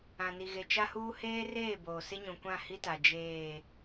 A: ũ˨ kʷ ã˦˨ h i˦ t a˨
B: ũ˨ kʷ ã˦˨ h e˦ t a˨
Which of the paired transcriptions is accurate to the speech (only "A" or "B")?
A